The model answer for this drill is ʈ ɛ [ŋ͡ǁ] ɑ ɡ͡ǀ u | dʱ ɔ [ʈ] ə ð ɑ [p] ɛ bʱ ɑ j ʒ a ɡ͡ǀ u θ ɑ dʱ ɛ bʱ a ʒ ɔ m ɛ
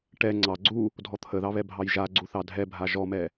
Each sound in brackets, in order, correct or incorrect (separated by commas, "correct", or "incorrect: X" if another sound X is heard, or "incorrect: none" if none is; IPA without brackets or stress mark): incorrect: ŋ͡ǀ, incorrect: t̪ʰ, incorrect: β